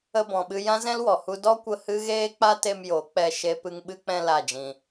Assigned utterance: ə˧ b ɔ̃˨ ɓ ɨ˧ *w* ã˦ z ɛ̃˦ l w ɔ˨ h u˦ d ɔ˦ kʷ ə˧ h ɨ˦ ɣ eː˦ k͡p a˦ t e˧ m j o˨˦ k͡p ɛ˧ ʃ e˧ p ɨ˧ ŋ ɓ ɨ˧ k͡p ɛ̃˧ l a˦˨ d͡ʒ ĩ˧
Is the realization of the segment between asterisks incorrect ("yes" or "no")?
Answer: yes